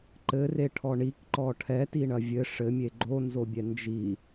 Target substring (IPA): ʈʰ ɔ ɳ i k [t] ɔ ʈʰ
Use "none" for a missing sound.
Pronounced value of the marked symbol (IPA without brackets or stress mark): ǃ